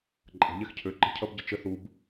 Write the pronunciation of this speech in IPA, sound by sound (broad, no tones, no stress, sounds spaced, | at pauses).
ǃʼ ə̤ ʎ ɛ x cʰ ø ǃ ə̤ cʰ ʌ b ɟ ə t͡ʃ ə θ u b